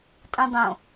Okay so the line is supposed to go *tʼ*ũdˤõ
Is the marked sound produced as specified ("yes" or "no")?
yes